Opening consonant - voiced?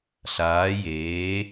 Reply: no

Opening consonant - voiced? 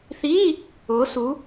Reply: no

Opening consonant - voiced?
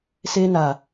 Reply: no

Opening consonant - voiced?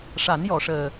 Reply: no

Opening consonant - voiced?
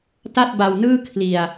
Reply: no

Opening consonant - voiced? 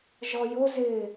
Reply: yes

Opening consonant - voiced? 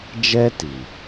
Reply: yes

